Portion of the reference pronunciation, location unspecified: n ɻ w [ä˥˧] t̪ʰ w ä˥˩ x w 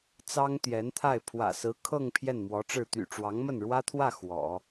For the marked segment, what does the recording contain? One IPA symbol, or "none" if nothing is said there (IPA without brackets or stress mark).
ä˥